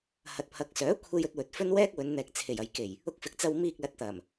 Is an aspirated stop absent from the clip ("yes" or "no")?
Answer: no